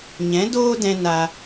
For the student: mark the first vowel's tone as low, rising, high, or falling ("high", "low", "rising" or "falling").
rising